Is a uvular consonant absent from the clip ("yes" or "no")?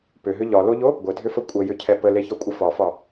yes